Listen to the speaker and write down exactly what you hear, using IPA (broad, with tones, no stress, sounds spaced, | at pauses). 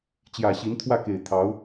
t͡ɕ j ä˨˩ ɕ i˧˥ n t̪ʰ w ä˥˩ k e˨˩ ɪ̯ t̪ʰ ɑ˧˥ ʊ̯